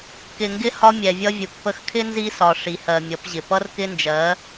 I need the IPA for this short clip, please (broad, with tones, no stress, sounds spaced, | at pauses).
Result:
k ɪ˨ ŋ ɡ ɪ˦ h ɒ˦ mʲ ɛ˨ vʲ ʌ˦ vʲ u˨ k p ə˦ x kʰ ɪ˦ n z i˦ s ɒ˨ ʂ i˨ h ɜ˨ mʲ ʌ˨˦ p ʑ ɪ˨ p ʌ˦ r k ɪ˦ n d͡ʒ ɜ˨˦